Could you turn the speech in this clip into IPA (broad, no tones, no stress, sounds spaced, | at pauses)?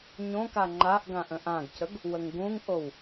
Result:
ɲ õ k a ŋ͡ǃ a ʔ ɡ ã ʔ ə̃ ʔ ã ɡ c ə ɡ | w ə ŋ ɡ ũ ŋ ʔ o w